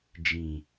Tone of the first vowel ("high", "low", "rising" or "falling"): low